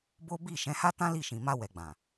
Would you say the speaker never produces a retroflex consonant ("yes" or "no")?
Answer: yes